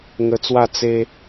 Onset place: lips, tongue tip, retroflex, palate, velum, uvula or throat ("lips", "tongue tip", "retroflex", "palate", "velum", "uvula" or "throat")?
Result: velum